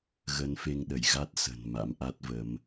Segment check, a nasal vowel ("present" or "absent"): absent